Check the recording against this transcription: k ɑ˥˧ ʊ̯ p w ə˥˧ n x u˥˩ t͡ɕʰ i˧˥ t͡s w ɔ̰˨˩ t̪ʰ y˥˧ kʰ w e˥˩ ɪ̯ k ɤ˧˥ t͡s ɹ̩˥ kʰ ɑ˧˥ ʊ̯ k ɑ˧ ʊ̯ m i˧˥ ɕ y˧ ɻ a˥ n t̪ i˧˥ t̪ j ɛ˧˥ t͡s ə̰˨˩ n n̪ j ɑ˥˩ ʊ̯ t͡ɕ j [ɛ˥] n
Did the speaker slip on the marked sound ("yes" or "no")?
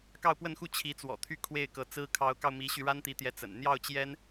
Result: no